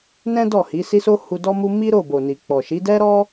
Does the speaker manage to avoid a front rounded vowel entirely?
yes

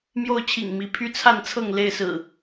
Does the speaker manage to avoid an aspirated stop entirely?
no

